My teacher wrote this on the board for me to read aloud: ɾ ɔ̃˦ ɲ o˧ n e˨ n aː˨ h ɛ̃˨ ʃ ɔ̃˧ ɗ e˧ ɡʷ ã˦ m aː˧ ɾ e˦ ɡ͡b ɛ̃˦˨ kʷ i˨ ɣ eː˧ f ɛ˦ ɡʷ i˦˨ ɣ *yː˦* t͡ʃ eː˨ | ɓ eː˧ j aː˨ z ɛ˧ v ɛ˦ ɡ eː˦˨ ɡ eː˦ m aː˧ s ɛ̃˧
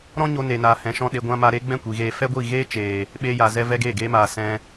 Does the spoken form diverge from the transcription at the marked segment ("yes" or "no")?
yes